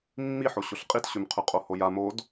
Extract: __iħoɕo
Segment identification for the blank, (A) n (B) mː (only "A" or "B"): B